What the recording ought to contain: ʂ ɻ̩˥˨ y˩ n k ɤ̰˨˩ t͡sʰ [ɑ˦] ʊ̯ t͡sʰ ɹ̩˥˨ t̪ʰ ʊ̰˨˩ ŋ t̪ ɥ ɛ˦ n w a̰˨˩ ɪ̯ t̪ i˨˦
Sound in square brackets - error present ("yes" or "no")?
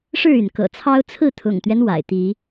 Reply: no